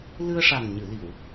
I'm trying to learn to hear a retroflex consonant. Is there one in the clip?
yes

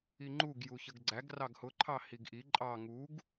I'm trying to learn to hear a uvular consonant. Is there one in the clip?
no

